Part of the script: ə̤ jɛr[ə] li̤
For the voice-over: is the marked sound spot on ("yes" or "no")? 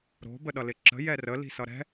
yes